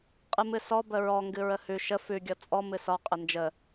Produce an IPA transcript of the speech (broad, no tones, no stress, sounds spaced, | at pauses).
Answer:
qʼ ɨ m ɨ s ɔ b ə ɹ ɔ ŋ ɡ ɨ ɹ ə h ʉ ʃ ə f ʉ ɡʲ ɔ t͡sʼ ɔ m ɨ s ɒ qʼ ə n d͡ʒ ə